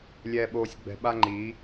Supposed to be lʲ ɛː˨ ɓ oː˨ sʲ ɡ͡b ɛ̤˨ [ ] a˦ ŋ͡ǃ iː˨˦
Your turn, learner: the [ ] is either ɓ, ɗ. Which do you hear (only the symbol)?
ɓ